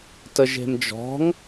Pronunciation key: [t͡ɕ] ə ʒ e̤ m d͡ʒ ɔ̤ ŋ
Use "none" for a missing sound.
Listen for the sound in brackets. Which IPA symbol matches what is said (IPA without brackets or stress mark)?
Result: t